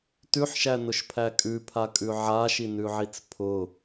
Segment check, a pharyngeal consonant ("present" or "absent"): present